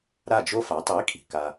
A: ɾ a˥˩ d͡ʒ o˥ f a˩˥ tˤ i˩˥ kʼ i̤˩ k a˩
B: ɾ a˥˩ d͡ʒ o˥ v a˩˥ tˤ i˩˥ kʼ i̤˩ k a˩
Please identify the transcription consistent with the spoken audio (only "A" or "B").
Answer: A